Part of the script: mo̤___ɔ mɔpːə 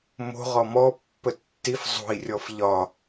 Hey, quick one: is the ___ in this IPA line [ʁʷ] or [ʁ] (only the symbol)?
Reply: ʁ